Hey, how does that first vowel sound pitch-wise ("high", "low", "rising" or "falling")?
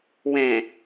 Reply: low